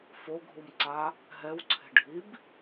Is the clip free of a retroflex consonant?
no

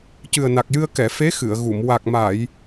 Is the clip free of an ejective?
yes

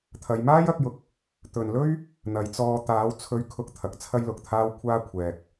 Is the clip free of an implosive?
yes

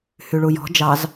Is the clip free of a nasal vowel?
yes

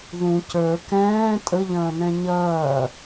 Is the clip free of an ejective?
no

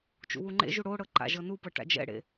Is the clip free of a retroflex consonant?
no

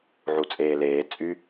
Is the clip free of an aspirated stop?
yes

